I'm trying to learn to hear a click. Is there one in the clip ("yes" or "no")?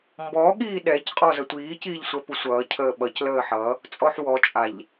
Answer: no